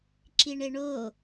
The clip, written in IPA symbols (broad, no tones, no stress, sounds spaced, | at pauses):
ǁ i ɳ e ɳ o